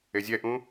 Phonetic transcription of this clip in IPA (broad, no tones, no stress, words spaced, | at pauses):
ezʲɛʔũ